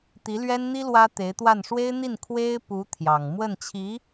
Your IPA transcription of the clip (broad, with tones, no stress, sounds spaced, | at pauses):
t̪ i˧˥ l ɥ ɛ˥ n n̪ i˥ l w ä˥ t̪ e˧˥ ɪ̯ t̪ w a˥˩ n ʂ w e˥ ɪ̯ n̪ i˥˩ n kʰ w e˥ ɪ̯ p u˧˥ t̪ʰ j ɑ˨˩ ŋ m w ə˥˩ n t͡ɕʰ i˧˥